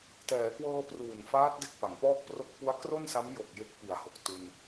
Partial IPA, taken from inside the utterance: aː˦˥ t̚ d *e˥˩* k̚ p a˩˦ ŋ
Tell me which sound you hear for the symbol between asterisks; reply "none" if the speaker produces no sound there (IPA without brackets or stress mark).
e˦˥